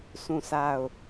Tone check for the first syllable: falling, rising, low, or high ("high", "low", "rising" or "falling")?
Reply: falling